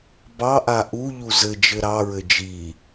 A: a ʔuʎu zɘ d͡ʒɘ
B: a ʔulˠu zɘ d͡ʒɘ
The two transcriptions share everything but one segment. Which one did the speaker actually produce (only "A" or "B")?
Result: A